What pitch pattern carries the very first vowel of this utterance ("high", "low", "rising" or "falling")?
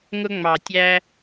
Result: high